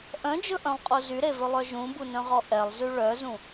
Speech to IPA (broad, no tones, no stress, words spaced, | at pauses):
ʔœ̃d͡ʒɵʔœ̃lˠqʼo zyɾevɵlˠœ ʒũbunœ̃ʁɔ ʔɛlˠzy ɭœzũ